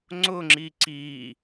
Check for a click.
present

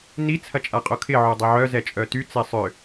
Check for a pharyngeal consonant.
present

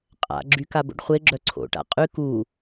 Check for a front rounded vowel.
present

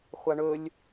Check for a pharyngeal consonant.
absent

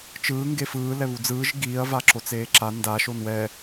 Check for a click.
present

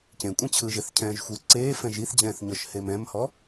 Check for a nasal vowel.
present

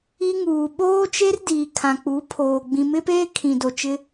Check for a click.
absent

